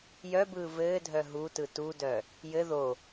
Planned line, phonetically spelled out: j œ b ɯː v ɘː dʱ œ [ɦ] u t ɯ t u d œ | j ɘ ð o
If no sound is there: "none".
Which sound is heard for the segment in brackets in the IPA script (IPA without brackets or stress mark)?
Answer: ɦ